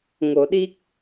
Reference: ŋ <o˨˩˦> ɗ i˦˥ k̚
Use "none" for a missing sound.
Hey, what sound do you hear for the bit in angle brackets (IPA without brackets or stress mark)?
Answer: o˨˩˦